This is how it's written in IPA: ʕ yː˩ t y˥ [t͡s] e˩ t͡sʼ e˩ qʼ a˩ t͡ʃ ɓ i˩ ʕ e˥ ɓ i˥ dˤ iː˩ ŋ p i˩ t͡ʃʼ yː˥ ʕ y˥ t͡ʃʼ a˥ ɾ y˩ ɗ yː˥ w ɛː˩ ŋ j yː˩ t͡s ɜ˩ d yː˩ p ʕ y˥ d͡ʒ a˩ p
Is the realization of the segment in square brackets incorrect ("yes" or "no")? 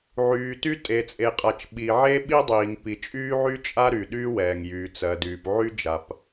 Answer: yes